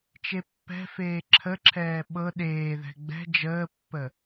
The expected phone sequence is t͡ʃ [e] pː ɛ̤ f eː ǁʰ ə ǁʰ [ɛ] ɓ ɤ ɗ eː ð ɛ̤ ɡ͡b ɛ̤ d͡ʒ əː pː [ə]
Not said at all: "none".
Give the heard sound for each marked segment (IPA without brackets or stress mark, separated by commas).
e, ɛː, ə